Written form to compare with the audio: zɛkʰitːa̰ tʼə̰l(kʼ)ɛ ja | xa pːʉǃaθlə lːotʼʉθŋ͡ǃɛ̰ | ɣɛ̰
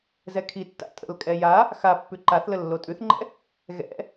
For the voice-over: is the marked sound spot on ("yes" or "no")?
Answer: yes